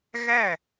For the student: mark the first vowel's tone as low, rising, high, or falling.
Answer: falling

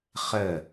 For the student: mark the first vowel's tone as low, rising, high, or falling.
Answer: falling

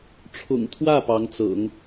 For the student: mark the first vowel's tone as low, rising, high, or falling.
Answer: low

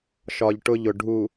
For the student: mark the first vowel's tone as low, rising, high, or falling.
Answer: low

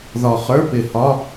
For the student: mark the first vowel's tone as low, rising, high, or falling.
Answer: low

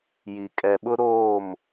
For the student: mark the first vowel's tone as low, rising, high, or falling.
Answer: low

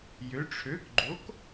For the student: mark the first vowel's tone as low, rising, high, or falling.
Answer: rising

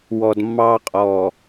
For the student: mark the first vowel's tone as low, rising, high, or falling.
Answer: low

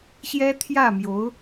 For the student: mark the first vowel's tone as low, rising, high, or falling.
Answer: high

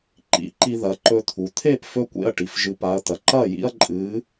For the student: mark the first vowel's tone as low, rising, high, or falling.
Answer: high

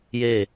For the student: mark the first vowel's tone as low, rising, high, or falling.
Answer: falling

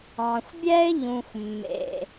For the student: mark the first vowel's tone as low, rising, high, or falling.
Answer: low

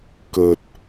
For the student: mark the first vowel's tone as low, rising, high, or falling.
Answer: low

